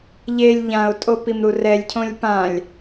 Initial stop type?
ejective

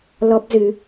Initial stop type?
plain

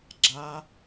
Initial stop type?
click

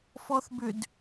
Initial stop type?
plain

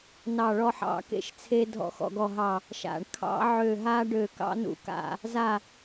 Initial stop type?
plain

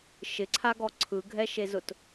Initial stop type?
click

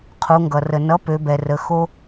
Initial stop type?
aspirated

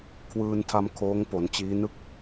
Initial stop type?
aspirated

